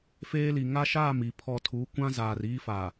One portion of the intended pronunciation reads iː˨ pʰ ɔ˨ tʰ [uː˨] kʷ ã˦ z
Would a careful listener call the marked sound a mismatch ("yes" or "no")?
yes